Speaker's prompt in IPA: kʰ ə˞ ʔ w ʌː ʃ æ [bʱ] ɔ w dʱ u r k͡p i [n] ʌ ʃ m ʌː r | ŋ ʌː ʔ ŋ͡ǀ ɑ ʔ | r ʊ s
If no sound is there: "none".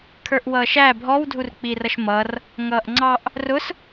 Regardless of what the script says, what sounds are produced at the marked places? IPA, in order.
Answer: bʱ, r

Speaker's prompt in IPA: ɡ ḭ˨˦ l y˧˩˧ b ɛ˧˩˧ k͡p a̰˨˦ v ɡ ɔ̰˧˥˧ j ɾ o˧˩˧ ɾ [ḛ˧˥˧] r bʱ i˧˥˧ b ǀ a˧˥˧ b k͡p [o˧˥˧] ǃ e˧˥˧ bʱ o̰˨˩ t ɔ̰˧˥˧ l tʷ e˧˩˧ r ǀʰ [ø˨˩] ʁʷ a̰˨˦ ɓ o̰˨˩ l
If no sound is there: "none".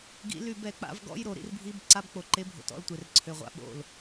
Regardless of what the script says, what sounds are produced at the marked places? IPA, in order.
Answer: ḭ˧˥˧, o˨˩, ø˨˩

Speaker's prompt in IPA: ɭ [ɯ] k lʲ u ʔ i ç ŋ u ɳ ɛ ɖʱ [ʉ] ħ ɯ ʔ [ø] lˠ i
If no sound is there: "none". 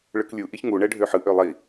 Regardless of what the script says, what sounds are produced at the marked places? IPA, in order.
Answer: ɯ, ø, ø

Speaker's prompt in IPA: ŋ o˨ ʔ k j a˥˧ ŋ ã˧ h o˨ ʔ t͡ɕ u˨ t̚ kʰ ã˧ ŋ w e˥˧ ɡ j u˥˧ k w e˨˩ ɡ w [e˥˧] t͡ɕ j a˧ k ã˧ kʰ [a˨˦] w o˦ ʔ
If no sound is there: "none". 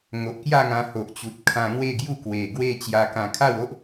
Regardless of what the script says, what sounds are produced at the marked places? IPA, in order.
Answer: e˥˧, a˥˧

